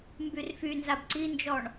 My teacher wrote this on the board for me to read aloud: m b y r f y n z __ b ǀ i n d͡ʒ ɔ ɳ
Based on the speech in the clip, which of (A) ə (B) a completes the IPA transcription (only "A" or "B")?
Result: B